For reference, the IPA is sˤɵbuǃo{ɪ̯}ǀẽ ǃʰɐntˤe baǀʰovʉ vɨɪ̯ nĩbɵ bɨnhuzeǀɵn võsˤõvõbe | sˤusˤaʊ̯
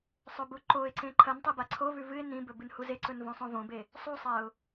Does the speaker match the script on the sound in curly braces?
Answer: yes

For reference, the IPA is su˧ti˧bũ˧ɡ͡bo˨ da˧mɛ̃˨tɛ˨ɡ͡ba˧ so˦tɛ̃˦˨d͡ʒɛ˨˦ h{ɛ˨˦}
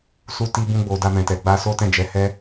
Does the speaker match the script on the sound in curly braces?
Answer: no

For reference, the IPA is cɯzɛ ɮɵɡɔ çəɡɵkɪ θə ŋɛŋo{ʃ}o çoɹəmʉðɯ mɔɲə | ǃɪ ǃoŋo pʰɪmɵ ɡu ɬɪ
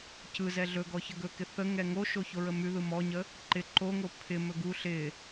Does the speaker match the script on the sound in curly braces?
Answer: yes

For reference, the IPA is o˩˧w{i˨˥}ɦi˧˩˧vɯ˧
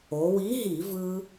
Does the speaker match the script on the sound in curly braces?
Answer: yes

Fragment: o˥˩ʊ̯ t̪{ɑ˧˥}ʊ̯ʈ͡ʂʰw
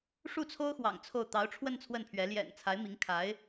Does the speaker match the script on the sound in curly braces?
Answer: yes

